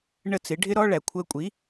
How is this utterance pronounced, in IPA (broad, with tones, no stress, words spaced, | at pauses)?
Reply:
ɳə˥˩t͡sɪ˩˥ ɖʱɪ˥ɾɔ˥ ɭæ˩ kʷʰəː˧kʷʼi˩˥